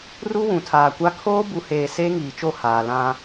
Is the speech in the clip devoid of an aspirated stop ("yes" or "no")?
no